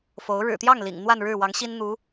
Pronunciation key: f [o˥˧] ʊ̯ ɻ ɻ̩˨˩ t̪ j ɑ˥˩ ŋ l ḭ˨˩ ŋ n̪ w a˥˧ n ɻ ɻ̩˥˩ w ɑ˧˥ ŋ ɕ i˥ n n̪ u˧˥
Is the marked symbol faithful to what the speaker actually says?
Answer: no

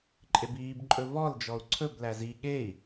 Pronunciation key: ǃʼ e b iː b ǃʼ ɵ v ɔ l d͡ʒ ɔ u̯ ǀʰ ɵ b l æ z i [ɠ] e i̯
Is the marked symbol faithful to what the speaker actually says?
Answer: yes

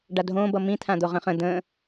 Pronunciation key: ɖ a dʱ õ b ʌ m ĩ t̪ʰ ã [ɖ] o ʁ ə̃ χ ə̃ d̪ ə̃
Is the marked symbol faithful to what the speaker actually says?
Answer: no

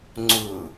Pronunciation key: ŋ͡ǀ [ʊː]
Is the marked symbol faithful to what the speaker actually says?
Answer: no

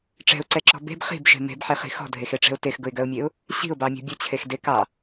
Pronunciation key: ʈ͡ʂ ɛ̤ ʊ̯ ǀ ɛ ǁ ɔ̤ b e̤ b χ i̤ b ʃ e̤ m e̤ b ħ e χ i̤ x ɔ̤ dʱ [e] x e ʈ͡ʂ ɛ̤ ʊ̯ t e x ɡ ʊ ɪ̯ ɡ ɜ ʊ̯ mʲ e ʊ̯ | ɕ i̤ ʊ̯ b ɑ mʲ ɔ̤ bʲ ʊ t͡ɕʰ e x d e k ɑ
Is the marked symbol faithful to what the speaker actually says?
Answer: yes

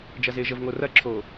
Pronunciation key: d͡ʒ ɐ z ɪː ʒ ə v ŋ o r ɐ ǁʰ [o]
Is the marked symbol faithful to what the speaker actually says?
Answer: no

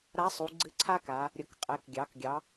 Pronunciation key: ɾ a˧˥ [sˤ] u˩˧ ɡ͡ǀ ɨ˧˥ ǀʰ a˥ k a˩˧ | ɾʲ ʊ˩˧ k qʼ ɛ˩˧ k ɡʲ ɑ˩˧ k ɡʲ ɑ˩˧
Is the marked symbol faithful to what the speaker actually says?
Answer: yes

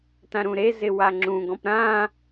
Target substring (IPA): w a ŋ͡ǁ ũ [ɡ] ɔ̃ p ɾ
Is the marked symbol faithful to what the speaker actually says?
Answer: yes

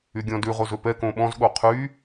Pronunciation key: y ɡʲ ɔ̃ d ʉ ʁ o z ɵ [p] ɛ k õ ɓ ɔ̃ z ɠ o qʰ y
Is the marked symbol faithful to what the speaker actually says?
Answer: yes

